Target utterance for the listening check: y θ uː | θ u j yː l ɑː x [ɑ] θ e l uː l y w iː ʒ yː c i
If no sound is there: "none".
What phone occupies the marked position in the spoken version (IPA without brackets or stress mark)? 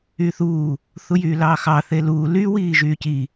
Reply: ɑ